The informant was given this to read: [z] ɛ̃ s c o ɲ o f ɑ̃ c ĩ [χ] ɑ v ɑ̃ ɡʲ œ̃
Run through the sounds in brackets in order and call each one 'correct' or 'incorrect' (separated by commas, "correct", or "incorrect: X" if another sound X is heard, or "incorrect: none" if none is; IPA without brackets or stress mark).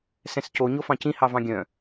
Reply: incorrect: s, incorrect: h